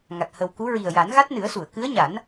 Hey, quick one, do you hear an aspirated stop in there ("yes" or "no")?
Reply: no